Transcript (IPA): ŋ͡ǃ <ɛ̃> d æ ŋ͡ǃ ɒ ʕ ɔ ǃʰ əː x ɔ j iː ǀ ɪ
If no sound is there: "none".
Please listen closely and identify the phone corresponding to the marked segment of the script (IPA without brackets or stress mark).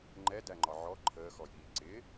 ɛ